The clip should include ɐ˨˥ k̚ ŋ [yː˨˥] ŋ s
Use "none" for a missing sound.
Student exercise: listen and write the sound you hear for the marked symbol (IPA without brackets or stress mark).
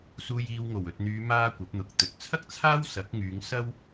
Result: yː˨˧